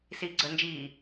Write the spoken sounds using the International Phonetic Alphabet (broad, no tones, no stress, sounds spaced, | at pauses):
s iː ɡ͡ǀ əː n d͡ʒ iː